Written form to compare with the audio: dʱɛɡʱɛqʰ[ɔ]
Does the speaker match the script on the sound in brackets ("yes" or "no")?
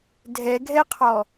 yes